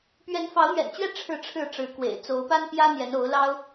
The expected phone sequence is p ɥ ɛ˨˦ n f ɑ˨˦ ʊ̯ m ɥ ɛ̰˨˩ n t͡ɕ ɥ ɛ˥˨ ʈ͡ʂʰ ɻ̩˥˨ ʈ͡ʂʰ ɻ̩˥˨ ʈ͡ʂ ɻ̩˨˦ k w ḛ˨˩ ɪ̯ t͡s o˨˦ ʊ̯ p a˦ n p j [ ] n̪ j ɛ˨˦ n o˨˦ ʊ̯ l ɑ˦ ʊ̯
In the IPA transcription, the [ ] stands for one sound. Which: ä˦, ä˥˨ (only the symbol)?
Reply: ä˦